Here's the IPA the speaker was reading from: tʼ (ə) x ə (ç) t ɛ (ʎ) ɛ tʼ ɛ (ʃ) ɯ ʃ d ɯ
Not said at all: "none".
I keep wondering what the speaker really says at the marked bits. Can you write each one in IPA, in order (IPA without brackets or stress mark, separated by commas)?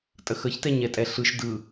ə, ç, ɲ, ɬ